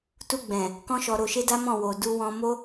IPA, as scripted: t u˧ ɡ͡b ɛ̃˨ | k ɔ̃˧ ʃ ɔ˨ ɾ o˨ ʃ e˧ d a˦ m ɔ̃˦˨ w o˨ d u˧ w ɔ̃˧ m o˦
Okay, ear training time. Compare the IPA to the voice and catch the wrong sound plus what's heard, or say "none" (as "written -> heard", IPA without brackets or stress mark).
none